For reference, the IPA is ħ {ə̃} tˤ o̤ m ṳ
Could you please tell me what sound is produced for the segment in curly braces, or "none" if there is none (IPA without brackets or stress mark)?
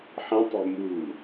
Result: ə̃